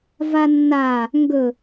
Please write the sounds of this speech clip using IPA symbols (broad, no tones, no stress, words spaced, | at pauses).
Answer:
vanːa | ŋɡɵ